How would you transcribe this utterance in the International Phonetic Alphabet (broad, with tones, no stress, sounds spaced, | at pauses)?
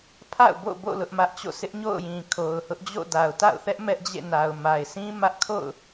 pʰ a̰˦˨ ʊ̯ b o̰˦˨ b o̰˦˨ l ʊ˦ ʔ m ä˦ ʔ t͡ɕ o̰˦˨ sʰ ɪ˦ ʔ ɲ o̰˦˨ ʊ̯ j ĩ˨ kʰ o˨ ʊ̯ h ʊ˦ ʔ d͡ʑ o̰˦˨ d a˨ ʊ̯ t a̰˦˨ ʊ̯ θ ɛ˦ ʔ m ɛ˦ ʔ d͡ʑ ḛ˦˨ n a˨ ʊ̯ m a˨ ɪ̯ sʰ ĩ˦ m ä˦ ʔ kʰ o̰˦˨ ʊ̯